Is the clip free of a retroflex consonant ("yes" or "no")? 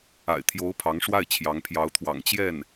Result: no